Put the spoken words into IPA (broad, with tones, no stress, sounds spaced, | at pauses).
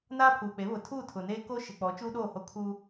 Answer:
n aː˦ pʰ uː˨ k͡p e˨˦ β ʊ˨ tʰ uː˦˨ tʰ ʊ˨ n eː˦ k o˦ ʃ ɪ˨ k͡p ɔ˨˦ t͡ʃ uː˦ ɗ oː˦˨ h o˦ kʰ uː˦